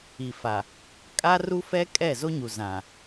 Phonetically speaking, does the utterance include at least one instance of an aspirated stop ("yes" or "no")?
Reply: no